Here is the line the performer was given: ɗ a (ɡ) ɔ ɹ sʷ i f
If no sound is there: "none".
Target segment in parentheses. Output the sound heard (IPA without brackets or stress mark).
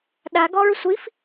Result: ɡ